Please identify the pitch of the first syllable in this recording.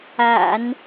low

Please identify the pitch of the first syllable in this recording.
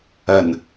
low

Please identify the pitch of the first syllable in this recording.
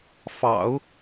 low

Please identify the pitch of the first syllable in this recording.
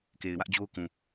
low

